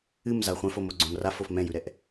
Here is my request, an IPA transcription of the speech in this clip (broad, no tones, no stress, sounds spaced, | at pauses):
ɨ m z a χʷ ɛ̃ f o m o ɡ͡ǀ õ m r a f o f m ɛ̃ j ʉ ɾ ɛ ʔ